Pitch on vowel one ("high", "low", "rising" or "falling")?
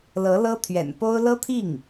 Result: rising